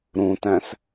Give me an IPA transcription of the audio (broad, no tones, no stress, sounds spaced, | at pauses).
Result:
ɾ ũ t æ̃ s